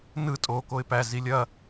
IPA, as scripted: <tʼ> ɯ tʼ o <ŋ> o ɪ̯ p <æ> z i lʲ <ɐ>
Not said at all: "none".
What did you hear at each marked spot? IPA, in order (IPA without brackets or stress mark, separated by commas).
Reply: n, k, æ, ɐ